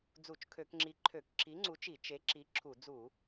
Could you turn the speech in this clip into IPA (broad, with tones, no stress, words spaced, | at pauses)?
d͡zu˧˩˧t͡ʃkʰø˧˩˧kŋ͡ǁi˨˥ ǃʰø˧˩˧k ǁi˨˥ŋ͡ǀu˨˥t͡ʃi˧˩˧ t͡ʃe˨˥ǁi˨˥ ǁʰu˧˩˧ d͡zu˧˩˧